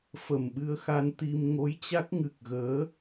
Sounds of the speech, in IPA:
f ə˨˩ m ɓ ɨ˧ ə̯ x a˧ n t̪ i˧ m ŋ o˨˦ j t͡ɕ a˦˥ k̚ ŋ ɨ˨˩ k̚ ɣ əː˨˦

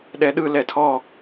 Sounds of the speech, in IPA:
ɗ ɛ ɗ ɯ l ɛ tʰ ɔ

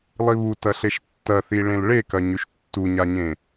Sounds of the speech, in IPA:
lˠ i β u t ɐ ɬ e ʃ tː ɐ θ i ɭ ẽ l ɭ e k ɐ ɲ ʉ ʃ tː u ɲ a ɲ ẽ

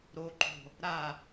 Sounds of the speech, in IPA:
ɾ o ǃ o̤ | ɾ a

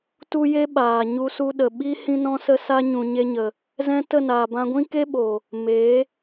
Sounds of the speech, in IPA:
t u˦ j e˦ ɓ aː˨ ɲ u˧ s u˧ ɗ ə˨ ɓ i˦ h ĩ˦ n ɔ̃˦ s ə˦ s a˦ ɲ ũ˨ ɲ e˧ ɲ ə˨ | z ɛ̃˦ t ə˦˨ n aː˨ b ã˧ ɡʷ ĩ˦ k e˦ ɓ o˨ | m e˨˦

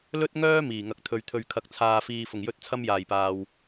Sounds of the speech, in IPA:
l ɵ˥ t̚ ŋ œː˥ m iː˨˩ ŋ ɐ˧ k̚ t̪ʰ ɵ˨ ɥ t̪ʰ ɵ˨ ɥ kʰ ɐ˨ k̚ t͡sʰ aː˨ f iː˨ f ʊ˨˩ ŋ j ɵ˧ t̚ t͡sʰ ɐ˥ m j aː˨˩ j p aː˨ w

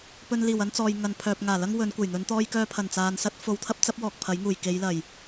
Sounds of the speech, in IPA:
p ɵ˧ n l iː˨˩ w ɐ˥ n t͡s ɔː˨ j ŋ ɐ˨ n pʰ œː˨ p̚ ŋ aː˨˩ l ɐ˥ ŋ w ɵ˨˧ n kʷ ɐ˨˩ j n̪ ɵ˨˧ n t̪ ɔː˧ j k œː˧ pʰ ɐ˨˩ n t͡s aː˨ n s ɐ˥ t̚ f o˨ w t̪ʰ ɐ˥ p̚ t͡s ɐ˨˥ p̚ w ɔː˨ k̚ pʰ ɐ˨˥ j ŋ uː˨˩ j k e˨˧ j l ɐ˨˩ j

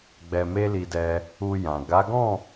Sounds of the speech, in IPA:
ɡ͡b ɛ˧ m e˦ l i˧ d ɛ˧ | u˧ j ã˨ ɡ a˨˦ ɡ ɔ̃˦˨

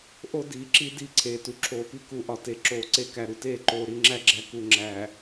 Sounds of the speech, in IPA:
ʔ o˦ d iː˨ ǁ i˦ d i˦˨ ǀʰ eː˨ t u˨ ǁʰ oː˨ p i˦ k u˨ ʔ ɒ˨ t e˨ ǁ oː˨ ǀ e˦ k æ˨ ɾ u˨ t eː˦˨ ǃ oː˨ ɾ i˨ ŋ͡ǁ æ˦ ɡ͡ǁ æ˨ k u˨ ŋ͡ǁ æ˨

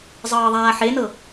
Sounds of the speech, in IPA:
zˤ ɤː ðˤ aː ħ e n ɤ

